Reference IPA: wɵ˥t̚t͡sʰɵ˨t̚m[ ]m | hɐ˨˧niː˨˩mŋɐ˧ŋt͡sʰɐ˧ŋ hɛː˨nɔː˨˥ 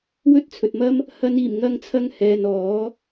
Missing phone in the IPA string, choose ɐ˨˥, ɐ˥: ɐ˥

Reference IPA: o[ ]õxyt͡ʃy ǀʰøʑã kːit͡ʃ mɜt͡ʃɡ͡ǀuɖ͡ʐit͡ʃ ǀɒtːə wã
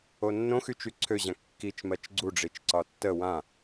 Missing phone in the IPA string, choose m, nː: nː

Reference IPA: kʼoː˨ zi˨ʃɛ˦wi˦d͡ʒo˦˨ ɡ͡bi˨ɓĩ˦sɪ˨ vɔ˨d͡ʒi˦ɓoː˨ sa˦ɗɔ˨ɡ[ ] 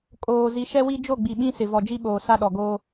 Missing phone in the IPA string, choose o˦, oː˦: oː˦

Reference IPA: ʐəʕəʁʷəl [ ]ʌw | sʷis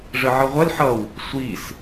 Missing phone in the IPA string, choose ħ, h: ħ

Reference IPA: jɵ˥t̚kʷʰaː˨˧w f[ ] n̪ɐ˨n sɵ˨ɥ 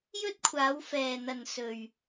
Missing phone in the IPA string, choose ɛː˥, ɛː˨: ɛː˨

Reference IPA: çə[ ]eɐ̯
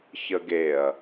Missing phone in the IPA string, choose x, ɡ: ɡ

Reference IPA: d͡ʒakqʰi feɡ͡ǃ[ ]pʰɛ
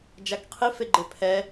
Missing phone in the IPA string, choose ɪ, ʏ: ɪ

